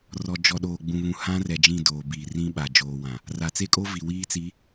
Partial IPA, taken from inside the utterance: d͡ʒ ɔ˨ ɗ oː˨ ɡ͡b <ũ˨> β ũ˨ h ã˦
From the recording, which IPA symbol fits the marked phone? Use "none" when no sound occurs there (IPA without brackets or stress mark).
ũ˨